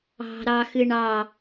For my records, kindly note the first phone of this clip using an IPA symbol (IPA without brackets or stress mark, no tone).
ɑ̤